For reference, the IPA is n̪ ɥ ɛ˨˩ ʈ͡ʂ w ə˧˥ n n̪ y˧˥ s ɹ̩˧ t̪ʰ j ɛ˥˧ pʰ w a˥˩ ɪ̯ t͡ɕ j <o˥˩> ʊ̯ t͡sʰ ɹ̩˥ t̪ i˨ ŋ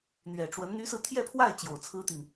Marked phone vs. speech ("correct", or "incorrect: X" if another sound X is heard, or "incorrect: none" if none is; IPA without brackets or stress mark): incorrect: o˨˩